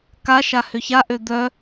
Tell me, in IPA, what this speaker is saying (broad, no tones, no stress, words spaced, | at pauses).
kaʃa hʏçaʔø d̪œ